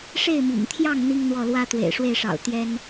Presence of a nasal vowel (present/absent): absent